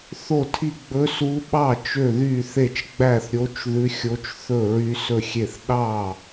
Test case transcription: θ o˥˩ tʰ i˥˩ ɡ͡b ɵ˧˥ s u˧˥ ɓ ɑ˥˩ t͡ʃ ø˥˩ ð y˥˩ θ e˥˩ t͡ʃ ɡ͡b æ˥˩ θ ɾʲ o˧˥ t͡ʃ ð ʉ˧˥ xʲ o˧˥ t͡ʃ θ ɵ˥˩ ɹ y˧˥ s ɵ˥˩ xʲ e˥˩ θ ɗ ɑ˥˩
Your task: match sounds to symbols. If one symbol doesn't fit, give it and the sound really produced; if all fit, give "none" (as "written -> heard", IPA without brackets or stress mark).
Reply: none